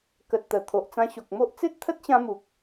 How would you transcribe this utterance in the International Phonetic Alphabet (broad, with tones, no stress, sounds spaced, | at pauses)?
k ə˨ t̚ t̪ ə˨˩ t̪ʰ o˨ ʔ t͡s ã˧ ɕ o˨ k̚ m o˦ ʔ t͡s e˦ t̚ t̪ʰ ə˦ t̚ ɕ ã˧ m u˨ k̚